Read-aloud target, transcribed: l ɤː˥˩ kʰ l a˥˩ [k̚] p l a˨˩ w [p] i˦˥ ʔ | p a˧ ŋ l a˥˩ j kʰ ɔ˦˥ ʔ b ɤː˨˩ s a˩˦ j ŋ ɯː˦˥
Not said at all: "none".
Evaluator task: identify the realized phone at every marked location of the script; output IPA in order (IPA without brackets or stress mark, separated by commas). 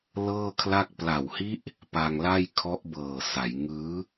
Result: k̚, h